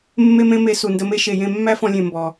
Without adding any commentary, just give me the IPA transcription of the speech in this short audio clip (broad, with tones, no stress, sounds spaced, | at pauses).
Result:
mː e˦ m ẽ˦ m e˧ s u˨ n d ə˧ m e˦ ʃ e˨ j ẽ˧ mː æ˦ f ɔ̃˧ lʲ ẽ˨ m b ɔ˨